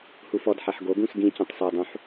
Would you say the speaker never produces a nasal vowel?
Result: no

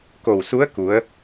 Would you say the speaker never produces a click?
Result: yes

